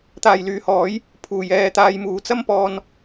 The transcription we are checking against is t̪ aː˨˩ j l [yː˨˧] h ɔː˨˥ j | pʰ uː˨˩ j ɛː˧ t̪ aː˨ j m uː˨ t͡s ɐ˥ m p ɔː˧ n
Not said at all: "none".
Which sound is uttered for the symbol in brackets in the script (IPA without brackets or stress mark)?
yː˨˧